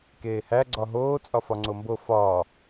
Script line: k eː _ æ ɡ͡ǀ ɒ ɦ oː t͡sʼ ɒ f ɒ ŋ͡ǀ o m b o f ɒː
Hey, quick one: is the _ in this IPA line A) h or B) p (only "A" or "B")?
A